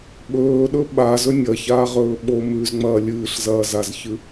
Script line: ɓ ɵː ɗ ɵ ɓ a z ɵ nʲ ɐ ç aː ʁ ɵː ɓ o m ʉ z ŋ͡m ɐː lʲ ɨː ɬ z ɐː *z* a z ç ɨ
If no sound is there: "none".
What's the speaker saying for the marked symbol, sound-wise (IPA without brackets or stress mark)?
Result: z